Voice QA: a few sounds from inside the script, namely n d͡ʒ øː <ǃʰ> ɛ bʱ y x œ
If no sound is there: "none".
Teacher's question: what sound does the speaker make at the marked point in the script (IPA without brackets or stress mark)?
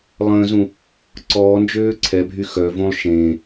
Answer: ǀʰ